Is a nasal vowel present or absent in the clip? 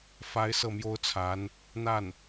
absent